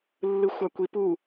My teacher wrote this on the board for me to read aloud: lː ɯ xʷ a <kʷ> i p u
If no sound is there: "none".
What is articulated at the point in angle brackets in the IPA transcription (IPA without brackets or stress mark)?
kʷ